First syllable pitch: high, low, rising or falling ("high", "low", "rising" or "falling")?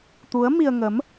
rising